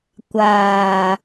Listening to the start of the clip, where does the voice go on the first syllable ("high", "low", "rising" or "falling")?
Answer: low